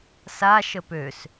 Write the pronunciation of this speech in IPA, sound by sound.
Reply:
s a ʃ ə p ø s

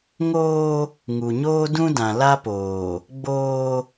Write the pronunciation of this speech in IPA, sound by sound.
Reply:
ŋ oː˦ | ŋ u˨ ɲ oː˦ d ũ˦ d ã˨ l a˦ p oː˨ | ɡ͡b oː˦

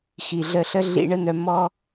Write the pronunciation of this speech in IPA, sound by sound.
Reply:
x i˨ ɮ ə˧ ɬ ə˦ ɮ ḭ˧ ɳ ə˦ n̪ œ˧ m ɔ˦

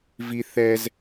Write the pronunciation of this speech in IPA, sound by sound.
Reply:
v i θ ɛ z

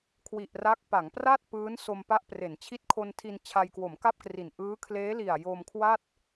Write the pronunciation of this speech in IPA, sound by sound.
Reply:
kʰ w i˨˩ ʔ r a˦˥ k̚ p a˩˦ ŋ p r a˥˩ t̚ p ɯː˦˥ n s o˧ m p a˦˥ ʔ p r e˩˦ n t͡ɕʰ i˦˥ t̚ kʰ o˧ n tʰ i˧ n t͡ɕʰ a˧ j k w o˩˦ m k a˥˩ p̚ k r i˨˩ n ʔ ɯː˦˥ kʰ l eː˦˥ l i˨˩ a̯ j o˧ m kʰ w a˥˩ t̚

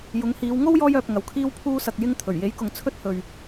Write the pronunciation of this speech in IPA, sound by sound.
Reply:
j ʊ˨˥ ŋ h iː˨˧ w ŋ o˥ w j ɔː˧ j œː˨ p̚ ŋ ɐ˨ w kʰ iː˥ w pʰ uː˥ s ɐ˨ k̚ j ɪ˧ ŋ t̪ʰ ɵ˨˩ ɥ j e˨˥ j k ʊ˨ ŋ t͡sʰ ɵ˥ t̚ h ɵ˨ ɥ

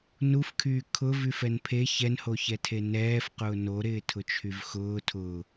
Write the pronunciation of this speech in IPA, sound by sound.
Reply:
n u f kʰ yː kʰ ʊ v y f ɛ n pʰ e ç ɛ n h o ç ɛ tʰ e n ɛː f q ʊː n o ɾ ɪː tʰ ʊ t͡ʃʰ y v x ʊː tʰ ʊ

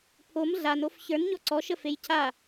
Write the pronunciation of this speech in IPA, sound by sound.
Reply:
pʰ o m ɮ a n o f ç ə˞ n ɲ ɔ ǀ ɔ ʃ ə f e j cʰ a

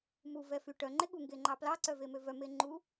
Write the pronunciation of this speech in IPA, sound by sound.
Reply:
m u v ɛ f y ʈ œ ŋ͡ǃ e ɠ u ŋ ɡ e ŋ͡ǃ ɑ p l ɑ ǀ œ v e m ø v œ m e ŋ͡ǃ u

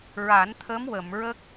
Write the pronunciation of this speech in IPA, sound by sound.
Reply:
ɹ a˨˩˦ n t̪ʰ ə˧˥ m w ə˨˩˨ m ɹ ə˦˥ k̚

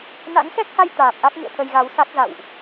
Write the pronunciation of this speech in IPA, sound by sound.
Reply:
n a̰˧˥ ŋ x ɛ˦˥ k̚ h a˧ j t̪ aː˨˩ p̚ ʔ a˦˥ k̚ ŋ ɨ̰˧˨ ə̯ t̪ʰ ə˧ j ɣ a˨˦ w s a˦˥ k̚ z a̰˧˨ w ʔ

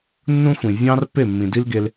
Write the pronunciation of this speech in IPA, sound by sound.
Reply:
nː ũ˦ xʷ ĩ˨ vʲ ɑ̃˦ r pː e˦˨ mː ĩ˨ d i˦ l ɡ e˧ l

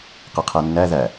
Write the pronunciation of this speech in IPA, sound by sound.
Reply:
q ɛ qʰ æ nː æ ð æ

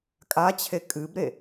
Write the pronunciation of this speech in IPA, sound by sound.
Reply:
kʼ a t͡ɕʰ e kʼ ɨ b ɾ e

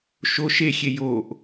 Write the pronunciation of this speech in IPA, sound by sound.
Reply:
ʃ o ʃ e xʲ e j o ʔ

